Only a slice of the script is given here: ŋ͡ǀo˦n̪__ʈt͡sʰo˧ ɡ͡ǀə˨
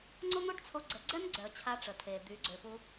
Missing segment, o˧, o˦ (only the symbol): o˦